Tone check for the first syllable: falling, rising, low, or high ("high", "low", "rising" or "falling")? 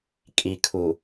low